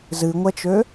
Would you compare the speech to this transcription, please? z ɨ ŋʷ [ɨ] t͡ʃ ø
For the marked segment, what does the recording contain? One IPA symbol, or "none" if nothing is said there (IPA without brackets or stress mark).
ɛ